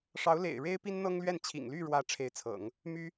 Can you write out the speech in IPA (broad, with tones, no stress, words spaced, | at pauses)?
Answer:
ʂɑ˧˥ʊ̯lḛ˨˩ɪ̯ɻe˥ɪ̯ pi˥nn̪ɤ˥ŋlɥɛ˥˩n t͡ɕʰḭ˨˩ŋ ly˥˩ɻwä˧˥ ʈ͡ʂʰe˧˥ɪ̯t͡sʰɤ̰˨˩˦ŋ | my˥